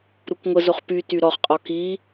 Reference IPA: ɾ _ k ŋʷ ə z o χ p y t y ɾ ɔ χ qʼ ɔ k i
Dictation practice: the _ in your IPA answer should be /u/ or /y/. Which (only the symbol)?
u